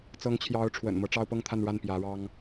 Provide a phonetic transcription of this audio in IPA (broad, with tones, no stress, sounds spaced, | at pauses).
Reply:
t͡s ɤ˧˥ ŋ t͡ɕʰ j ɑ˧˥ ʊ̯ ʈ͡ʂʰ w ə̰˨˩ n m ɤ˦ ʈ͡ʂ ɑ˥ ʊ̯ p ɤ˥ ŋ t̪ʰ a˥˧ n ɻ a˥˩ n p j ä˧˥ ɻ ɑ˥ ŋ